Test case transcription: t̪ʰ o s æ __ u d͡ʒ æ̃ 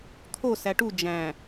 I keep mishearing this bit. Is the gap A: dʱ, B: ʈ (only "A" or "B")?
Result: B